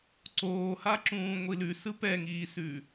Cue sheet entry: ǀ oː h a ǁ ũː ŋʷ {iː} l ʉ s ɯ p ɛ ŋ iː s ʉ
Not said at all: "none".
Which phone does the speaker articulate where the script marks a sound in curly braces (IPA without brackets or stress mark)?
i